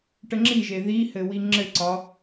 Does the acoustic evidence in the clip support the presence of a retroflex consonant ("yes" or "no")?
yes